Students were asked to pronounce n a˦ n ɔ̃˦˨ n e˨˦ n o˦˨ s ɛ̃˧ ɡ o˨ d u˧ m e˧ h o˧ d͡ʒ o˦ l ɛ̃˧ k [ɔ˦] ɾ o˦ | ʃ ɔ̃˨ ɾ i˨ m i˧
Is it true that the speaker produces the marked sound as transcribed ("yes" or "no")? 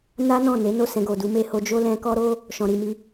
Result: yes